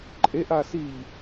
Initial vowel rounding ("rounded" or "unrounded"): unrounded